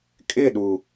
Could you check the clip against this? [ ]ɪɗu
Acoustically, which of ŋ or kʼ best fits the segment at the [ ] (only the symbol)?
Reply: kʼ